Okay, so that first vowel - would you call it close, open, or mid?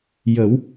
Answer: mid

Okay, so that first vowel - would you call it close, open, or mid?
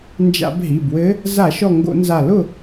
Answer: open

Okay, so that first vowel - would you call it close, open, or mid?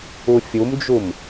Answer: close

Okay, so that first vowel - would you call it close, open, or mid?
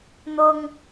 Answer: close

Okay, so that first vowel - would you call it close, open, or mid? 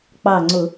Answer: open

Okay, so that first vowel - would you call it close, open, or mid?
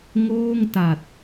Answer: mid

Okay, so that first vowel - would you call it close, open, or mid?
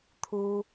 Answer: close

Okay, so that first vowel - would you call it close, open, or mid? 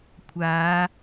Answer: open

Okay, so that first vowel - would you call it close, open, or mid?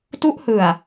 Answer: close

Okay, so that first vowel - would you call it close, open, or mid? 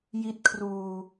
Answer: close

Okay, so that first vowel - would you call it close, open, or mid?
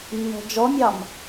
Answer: mid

